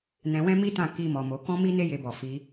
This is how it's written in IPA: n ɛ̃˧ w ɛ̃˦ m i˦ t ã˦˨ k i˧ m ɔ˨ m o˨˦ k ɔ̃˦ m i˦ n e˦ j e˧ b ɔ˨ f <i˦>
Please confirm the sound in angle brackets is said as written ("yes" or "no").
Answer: no